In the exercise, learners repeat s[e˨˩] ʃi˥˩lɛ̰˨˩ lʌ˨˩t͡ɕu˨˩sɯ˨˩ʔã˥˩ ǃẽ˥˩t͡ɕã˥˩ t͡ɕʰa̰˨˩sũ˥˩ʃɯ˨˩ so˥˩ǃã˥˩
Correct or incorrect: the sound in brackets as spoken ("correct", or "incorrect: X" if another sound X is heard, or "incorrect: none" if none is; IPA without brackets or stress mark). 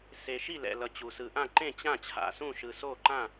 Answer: correct